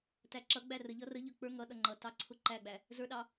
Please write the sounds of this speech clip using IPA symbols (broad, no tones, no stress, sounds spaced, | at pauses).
t æ ǁ ʌ ɡ͡b æ r ə ʎ ʌ r ə ʎ ə˞ k͡p ə˞ ŋ ʌ ɗ ʌ ŋ͡ǃ ʌ t ɑ ǀʰ ʊ ǃ æ ɡ͡b æ | z ə˞ ɗ ɑ